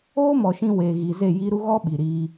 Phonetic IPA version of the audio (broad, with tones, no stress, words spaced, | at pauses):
oː˦mɔ˨ʃĩ˧ we˨ɣi˨ ze˦˨ji˦ɾu˦ ɣɔ˦ɓi˨ɾiː˧